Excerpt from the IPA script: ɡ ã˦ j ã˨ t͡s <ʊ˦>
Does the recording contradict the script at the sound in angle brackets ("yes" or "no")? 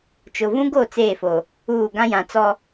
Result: yes